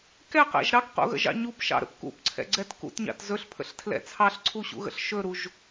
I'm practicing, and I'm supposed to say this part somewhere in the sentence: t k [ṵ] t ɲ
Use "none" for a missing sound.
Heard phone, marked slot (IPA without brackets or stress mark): ṵ